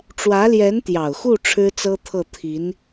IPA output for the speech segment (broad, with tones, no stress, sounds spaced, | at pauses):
ʈ͡ʂ w ä˧˥ l j ɛ˧˥ n t̪ j ɑ˨˩ ʊ̯ x u˥˩ ʈ͡ʂʰ ɻ̩˥ t͡s ɤ˥ t̪ʰ ɤ˥˩ t̪ʰ i˧˥ n